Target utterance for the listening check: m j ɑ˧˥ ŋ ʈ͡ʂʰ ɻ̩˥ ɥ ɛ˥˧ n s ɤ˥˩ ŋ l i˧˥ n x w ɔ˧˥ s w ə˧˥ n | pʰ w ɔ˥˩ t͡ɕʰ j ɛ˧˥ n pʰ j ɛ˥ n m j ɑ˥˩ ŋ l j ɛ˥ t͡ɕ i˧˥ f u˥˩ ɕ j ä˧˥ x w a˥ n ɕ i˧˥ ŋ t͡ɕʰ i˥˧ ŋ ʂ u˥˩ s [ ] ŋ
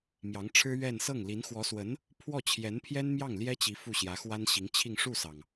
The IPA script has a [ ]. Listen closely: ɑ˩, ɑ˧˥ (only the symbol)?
ɑ˩